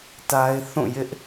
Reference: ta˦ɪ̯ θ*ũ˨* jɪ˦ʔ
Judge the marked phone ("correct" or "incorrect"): incorrect